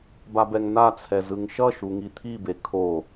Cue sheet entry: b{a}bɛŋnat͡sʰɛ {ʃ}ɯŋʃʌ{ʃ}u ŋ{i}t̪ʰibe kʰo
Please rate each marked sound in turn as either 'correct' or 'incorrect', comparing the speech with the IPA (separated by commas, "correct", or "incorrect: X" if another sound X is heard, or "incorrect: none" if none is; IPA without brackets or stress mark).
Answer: correct, incorrect: z, correct, correct